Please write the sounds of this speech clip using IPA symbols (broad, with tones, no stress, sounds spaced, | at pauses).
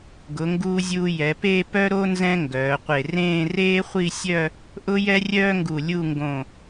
ɡ ʊ˩˧ ŋ ɡ uː˧ zʲ uː˧ j ɛ˩˧ p eː˥˧ p œ˥ ɾ o˥ n z ɛ̃˥ ŋ ɡ œː˩˧ qʷ e˧˩ r ẽː˥˧ r eː˥ χʷ i˥˧ sʲ œ˥˧ | ʔ ʊ˥ j ɛ˥ rʲ œː˥ ŋ ɡ u˧˩ lʲ u˥˧ ŋ ɡ õ˧˩